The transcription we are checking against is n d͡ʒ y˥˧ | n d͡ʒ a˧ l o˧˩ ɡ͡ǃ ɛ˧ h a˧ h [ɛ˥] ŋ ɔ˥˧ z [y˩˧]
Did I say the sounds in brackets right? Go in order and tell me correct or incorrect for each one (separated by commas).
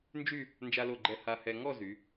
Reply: incorrect, correct